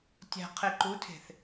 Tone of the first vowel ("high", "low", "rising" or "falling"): low